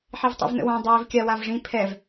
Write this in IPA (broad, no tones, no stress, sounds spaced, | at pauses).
ħ i v tˤ ḭ v n ə̰ w ã dˤ iː v kʲ a w a v ʐ ĩ pʰ ɛ v